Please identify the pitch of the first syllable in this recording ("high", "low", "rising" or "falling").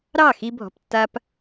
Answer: falling